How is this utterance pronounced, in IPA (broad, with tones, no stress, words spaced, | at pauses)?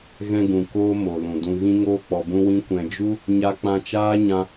ɣɛ̃˧ɡũ˨ koː˦ mo˨ lũ˨ dũ˧ɣĩ˦ ŋoː˦k͡pɔ˧bũ˦wĩ˦ kʷɛ̃˧d͡ʒu˦ | ɲa˧k͡pã˧t͡ʃaː˦ ɲã˧